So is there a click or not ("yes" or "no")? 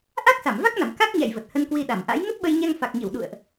no